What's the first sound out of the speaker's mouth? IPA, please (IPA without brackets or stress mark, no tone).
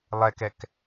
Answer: lˠ